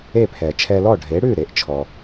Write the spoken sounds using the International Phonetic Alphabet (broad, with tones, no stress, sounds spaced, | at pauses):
e˥˩ pʰ ɛ˩ t͡ʃʰ ɛ˧ l ɔ˥˩ ɖʱ e˩˥ ɽ ʉ˥˩ ɾ e˩˥ ʔ t͡ʃʰ ɔ˩